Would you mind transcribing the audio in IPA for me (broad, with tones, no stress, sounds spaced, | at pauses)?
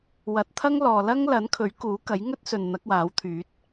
w ɐ˨˥ t̚ t̪ʰ ɐ˥ ŋ l ɔː˨ l ɐ˥ ŋ l ɐ˨˥ n kʰ ɵ˨˥ ɥ k uː˨˥ k ɐ˨˥ j ŋ ɵ˥ t̚ s ɵ˨ n n̪ ɐ˨˥ k̚ w aː˨˥ w t̪ʰ yː˨˥ t̚